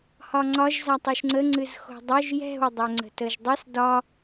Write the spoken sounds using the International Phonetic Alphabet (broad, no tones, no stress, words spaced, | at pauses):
hɒŋ͡ǀɒʒ zatˤoʃŋ͡ǀə ŋ͡ǀɨzxo̤dˤœʒ jɛ̤w dˤœŋ͡ǀə̤təʒdˤɨs dɒ